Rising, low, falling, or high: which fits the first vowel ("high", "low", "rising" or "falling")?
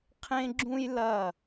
high